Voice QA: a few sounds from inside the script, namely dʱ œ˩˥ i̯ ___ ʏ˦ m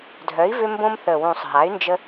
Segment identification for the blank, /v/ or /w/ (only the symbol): v